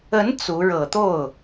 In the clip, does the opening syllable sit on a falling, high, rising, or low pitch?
rising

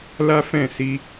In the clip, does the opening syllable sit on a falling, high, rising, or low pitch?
high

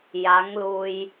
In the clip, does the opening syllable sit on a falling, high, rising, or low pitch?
rising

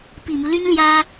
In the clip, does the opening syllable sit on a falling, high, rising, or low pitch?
low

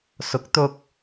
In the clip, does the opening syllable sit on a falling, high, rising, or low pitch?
rising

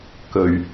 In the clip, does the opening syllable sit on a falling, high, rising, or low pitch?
low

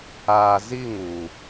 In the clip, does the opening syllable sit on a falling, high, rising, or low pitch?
low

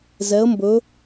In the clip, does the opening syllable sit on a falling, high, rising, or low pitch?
rising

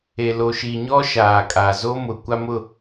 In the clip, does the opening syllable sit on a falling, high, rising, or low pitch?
low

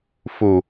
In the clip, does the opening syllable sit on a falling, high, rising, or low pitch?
low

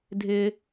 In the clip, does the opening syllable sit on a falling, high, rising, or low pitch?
high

